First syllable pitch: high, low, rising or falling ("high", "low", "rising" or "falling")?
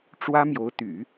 high